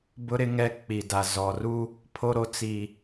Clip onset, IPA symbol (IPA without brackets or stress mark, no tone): b